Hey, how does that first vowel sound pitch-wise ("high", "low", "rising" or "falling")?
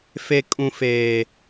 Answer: high